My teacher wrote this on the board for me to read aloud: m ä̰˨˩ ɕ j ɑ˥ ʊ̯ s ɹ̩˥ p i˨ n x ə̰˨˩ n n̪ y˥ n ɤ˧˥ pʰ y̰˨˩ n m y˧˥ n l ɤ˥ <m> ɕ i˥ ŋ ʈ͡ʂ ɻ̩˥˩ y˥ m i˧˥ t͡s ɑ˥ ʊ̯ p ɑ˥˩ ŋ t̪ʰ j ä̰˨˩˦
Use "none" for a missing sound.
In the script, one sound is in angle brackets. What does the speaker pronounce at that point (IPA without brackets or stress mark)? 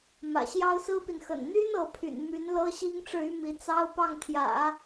none